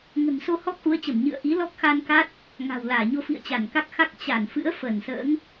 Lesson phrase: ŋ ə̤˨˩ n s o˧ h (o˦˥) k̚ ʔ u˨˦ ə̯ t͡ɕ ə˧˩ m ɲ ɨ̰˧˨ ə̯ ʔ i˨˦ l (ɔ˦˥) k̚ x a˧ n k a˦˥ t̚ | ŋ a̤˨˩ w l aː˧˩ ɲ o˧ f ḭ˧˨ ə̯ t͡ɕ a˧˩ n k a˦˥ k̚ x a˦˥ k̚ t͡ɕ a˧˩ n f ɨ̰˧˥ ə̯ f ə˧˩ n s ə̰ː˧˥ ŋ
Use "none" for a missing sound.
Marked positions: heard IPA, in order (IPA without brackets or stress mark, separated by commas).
ɔ˦˥, ɔ˦˥